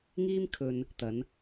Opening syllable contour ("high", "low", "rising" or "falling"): high